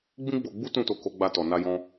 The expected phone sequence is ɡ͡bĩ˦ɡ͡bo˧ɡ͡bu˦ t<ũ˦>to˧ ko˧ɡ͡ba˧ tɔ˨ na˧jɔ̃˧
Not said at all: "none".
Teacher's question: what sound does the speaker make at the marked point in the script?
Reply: ũ˦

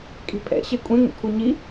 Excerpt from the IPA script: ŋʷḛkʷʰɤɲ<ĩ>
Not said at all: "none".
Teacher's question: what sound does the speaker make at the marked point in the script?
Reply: i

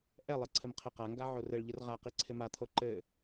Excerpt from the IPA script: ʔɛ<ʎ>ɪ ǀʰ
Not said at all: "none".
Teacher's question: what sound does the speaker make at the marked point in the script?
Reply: lˠ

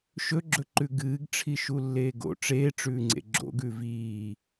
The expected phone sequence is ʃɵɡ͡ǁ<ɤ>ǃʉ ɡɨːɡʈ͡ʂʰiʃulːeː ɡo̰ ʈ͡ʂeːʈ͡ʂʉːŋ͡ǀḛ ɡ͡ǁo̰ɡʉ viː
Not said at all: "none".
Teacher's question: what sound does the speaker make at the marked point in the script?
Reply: ɵ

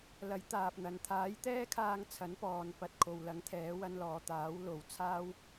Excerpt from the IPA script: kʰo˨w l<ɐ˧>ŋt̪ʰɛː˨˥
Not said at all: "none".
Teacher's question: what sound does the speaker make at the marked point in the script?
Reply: ɐ˨˥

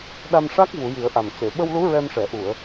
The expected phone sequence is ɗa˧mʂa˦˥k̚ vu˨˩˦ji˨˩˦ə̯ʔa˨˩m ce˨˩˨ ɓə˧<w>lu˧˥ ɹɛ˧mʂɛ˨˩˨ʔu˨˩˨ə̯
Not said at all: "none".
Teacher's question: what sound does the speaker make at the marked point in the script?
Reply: w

